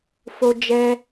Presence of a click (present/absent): absent